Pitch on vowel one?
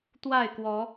falling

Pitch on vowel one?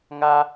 high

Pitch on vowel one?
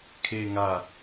low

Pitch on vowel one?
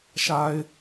low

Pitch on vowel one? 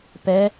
rising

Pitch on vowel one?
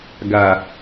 low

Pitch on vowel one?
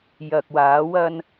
low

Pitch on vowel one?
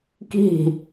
falling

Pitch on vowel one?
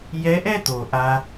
rising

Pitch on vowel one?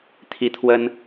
high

